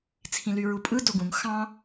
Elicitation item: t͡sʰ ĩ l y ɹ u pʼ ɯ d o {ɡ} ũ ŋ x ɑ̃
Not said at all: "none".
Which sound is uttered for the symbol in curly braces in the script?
ɡ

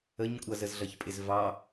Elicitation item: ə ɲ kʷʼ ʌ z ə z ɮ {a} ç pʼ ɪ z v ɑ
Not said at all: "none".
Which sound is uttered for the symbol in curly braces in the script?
ʌ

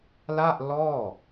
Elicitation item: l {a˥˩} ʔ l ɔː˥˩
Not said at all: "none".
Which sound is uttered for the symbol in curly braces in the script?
a˥˩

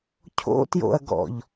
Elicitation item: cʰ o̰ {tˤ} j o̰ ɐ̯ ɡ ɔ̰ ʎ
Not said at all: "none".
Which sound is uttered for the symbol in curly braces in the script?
t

